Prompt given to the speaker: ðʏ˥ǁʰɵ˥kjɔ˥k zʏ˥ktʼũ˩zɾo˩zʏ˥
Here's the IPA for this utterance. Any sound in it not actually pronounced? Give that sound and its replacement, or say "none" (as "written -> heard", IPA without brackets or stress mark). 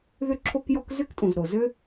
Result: ɵ˥ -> o˥